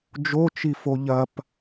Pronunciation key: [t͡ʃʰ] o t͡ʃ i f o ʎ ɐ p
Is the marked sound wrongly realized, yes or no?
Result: yes